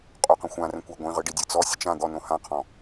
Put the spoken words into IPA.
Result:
qʼ o q ə̃ xʷ ã r ə̃ kʷ a ɡʷ ĩ ʁ ɯ ɖ i dʲ ɯ t͡s ɔ sʲ ə t͡ʃ ã d̪ ɔ n õ h ã qʰ ɔ̃

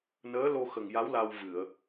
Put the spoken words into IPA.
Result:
n əː˧˥ l o˧ x ə˨˩ ŋ j a˧˥ w l a˧ w v ɨ˨˩˨ ə̯

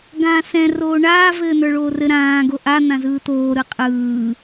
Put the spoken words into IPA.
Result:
ɡ ãː s ɛ̃ r oː ɳ aː v ɘː n̪ ə˞ ɭ oː r ɘ ɾ ãː ɡ o ʔ a n̪ ã z ɯː t̪ oː ɾ ɯ qʼ ɯː

